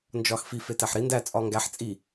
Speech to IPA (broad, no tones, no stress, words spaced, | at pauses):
nd͡ʒɒxfi fetæħɾi ndæ t͡sʼɒŋɡæħ t͡sʼi